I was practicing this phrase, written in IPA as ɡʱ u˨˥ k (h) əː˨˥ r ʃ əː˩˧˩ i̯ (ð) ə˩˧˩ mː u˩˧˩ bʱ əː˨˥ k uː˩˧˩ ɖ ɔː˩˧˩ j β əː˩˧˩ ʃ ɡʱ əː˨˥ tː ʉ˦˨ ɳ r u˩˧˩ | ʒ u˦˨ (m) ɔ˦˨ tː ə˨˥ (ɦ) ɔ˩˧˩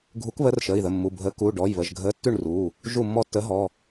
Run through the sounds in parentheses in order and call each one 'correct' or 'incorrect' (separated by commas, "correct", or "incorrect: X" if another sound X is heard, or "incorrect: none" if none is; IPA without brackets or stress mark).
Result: incorrect: β, correct, incorrect: mː, correct